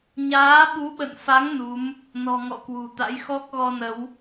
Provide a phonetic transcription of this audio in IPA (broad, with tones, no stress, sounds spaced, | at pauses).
ɲ aː˨˦ ɓ u˨˦ ɓ ə̰˧˨ n f a˨˦ ŋ n u˨˦ m | n ɔ̤˨˩ ŋ ɔ̰˧˨ k w ṳ˨˩ t̪ a̰˧˥ j x ɔ˦˥ k̚ ɣ ɔ˧ n ə˨˦ w